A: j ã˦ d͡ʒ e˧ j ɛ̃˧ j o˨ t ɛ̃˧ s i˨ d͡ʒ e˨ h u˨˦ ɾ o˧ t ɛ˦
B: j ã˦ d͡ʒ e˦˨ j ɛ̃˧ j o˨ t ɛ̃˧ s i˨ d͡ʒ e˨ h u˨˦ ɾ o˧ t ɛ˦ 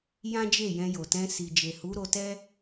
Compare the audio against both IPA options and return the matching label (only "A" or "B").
B